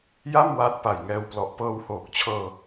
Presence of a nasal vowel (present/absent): absent